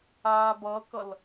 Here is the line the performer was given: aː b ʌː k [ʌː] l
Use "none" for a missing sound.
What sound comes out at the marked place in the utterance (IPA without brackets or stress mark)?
ʌ